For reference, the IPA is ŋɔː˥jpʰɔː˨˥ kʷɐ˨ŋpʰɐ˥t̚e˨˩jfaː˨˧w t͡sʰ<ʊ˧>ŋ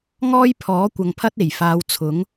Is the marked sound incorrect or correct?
incorrect